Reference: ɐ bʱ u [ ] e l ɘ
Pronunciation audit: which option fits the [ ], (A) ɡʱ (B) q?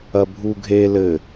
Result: A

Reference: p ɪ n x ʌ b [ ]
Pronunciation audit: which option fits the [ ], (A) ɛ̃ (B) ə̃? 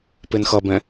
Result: A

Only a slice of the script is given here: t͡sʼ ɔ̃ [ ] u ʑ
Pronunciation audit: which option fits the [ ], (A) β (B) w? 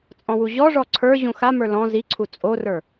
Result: B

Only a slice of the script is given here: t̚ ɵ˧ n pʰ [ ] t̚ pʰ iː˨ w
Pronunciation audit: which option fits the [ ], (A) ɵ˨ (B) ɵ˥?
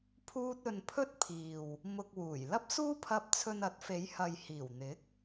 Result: B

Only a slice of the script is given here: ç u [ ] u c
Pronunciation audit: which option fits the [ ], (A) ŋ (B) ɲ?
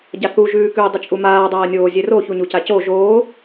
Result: B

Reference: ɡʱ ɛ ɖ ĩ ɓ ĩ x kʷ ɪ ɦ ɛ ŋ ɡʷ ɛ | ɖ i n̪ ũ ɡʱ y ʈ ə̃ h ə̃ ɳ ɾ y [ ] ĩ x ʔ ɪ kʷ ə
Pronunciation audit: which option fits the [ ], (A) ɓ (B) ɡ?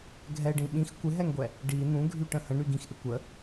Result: B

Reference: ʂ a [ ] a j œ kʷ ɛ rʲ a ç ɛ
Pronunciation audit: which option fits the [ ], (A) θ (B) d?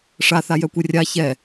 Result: A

